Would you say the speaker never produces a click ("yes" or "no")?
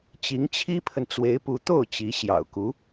yes